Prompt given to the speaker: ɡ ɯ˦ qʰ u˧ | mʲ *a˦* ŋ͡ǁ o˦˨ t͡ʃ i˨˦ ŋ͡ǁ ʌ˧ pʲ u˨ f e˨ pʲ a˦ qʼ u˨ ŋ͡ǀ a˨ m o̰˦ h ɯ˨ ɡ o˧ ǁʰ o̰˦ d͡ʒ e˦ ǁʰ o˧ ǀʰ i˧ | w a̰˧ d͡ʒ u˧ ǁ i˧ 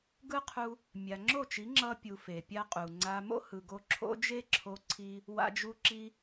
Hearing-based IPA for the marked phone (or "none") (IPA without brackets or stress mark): a˨